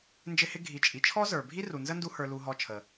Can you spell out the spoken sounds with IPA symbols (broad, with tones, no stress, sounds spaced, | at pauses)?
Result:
n d͡ʒ ɪ˦ h ɪ˦ ɡʱ i˨ t͡ʃʼ i˨ t͡ʃʰ ɔ˦ z ə˞˨ bʱ i˦ r u˨ n z ə˦ n d u˦ h ə˞˧ l u˧ ɦ ɔ˧ t͡ʃʰ ə˨